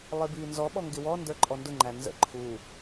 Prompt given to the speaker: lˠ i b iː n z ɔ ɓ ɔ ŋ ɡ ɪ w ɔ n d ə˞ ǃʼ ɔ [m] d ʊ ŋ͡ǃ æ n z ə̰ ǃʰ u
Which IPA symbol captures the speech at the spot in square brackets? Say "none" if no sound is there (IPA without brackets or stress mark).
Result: n